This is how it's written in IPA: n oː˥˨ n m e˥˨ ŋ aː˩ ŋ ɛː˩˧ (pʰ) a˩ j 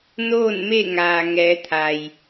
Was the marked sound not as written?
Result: yes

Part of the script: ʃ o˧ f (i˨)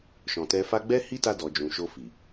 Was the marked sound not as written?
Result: no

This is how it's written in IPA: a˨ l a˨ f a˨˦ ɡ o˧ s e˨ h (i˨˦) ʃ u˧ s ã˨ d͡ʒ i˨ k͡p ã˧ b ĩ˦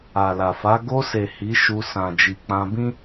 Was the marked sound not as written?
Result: no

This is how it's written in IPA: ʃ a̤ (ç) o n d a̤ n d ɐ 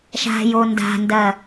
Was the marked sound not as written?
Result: yes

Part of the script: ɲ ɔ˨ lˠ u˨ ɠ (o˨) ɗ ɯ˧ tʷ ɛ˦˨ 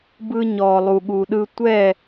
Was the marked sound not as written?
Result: yes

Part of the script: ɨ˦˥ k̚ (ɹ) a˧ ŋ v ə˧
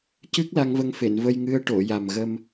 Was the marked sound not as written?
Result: yes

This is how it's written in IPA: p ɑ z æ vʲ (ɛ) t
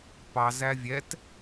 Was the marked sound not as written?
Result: no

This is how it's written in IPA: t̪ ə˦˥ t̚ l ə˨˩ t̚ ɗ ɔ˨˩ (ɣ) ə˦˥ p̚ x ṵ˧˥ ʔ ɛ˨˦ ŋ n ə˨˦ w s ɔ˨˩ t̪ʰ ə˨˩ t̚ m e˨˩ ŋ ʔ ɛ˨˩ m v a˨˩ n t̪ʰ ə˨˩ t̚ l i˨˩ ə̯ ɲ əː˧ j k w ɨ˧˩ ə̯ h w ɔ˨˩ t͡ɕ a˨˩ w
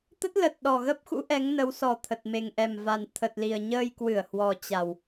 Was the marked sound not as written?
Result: no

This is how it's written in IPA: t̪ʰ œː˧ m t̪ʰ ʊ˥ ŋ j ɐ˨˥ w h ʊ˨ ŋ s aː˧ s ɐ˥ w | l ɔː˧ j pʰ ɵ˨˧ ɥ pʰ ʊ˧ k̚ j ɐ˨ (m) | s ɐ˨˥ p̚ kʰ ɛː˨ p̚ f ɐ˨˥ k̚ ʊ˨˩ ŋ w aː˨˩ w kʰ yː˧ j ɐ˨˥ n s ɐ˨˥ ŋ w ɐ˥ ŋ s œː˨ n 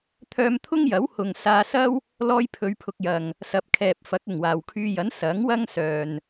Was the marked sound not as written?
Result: yes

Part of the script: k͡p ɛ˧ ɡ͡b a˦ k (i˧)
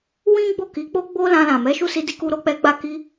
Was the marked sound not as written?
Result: yes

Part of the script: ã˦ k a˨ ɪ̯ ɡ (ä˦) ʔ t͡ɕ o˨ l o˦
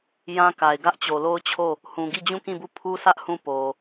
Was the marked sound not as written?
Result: no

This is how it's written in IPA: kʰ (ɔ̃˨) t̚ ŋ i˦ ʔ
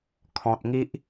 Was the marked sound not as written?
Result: no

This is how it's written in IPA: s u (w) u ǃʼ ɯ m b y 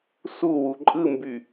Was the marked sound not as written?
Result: no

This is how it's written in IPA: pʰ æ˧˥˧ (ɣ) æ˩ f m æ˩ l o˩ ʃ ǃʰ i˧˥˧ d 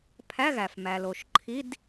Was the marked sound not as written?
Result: no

